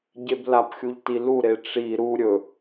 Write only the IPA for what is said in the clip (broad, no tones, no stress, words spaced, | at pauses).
ɟeblapxʲuʎ tiluɾe ʈ͡ʂi ɾu ɾʲɵ